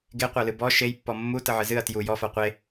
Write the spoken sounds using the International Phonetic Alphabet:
ɡeqʷalɨ bɔ ʃejpːɔ mːutəʕɨ zɨɐ̯ tju jɔfa qʷe

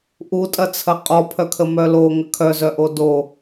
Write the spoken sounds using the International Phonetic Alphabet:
ʔutʼɐt͡sʰɐ qʼɔpʰœkʰə mœlo ŋəkʰœzœʔo do

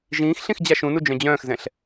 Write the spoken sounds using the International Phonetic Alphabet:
ʒĩːxɬĩx d͡ʑaʃũnu d͡ʒœ̃d͡ʑœ̃ːxzɛ̃ɬ

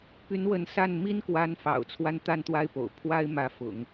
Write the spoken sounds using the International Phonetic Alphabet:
py˧˥n wə˧˥nsa˥˩n mi˥nkwa˧˥n fɑ̰˨˩ʊ̯ t͡sʰwa˥nt̪a˥˧nt̪wa˥˩ɪ̯ po̰˨˩ʊ̯ pʰwa˥ɪ̯mä˧˥fʊ̰˨˩˦ŋ

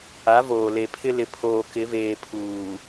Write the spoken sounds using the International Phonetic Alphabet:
a˨˦voː˨le˨pʰɪ˦ lɪ˨pʰoː˨ kɪ˨˦veː˨ pʰuː˨

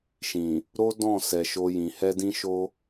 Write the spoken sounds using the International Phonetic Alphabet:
ʃĩ˨ | ɾo˦dɔ̃˦˨ sɛ˧ʃo˦jĩ˧ hɛ˦dĩ˦ʃo˦

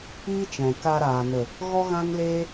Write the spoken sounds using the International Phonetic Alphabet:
iː˦t͡ʃɛ̃˨ka˧ɾaː˨ nə˨ | ɣɔ˦ɣã˦ŋleː˦

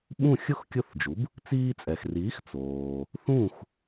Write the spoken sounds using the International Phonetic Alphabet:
ɓũ˥˩xʲʊ˥xkʲʊ˥˩θd͡ʒu˩˥b | t͡siː˧t͡sʼɛ˩xriː˩˥x t͡soː˩ | θũ˥˩x

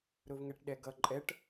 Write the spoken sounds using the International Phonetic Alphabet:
ɾʊvŋɛʈɗɛɡʌ ǃʼɛʈ

